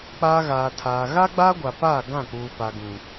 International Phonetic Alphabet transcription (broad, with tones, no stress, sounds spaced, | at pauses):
k͡p aː˦ ɣ aː˨ tʰ aː˨ ɣ a˦ ɡ͡b aː˦ ɡʷ a˨ p aː˦˨ ɡ ã˦˨ k͡p uː˨ p a˨ ɡ ũ˨